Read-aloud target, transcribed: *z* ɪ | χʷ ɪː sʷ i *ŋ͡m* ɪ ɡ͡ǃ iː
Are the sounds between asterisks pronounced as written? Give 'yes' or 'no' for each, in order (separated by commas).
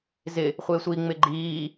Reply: yes, yes